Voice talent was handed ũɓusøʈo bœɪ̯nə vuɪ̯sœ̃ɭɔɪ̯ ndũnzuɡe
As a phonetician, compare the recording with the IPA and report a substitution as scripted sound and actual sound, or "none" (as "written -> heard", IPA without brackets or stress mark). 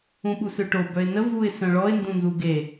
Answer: none